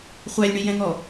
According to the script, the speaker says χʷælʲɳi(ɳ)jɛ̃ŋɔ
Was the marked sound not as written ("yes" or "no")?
yes